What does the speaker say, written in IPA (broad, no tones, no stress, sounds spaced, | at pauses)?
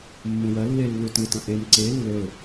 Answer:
mː ũ w ɐ lː e lː u t ɨ t ɐ̃ ʔ e m ǀ e lː ɵ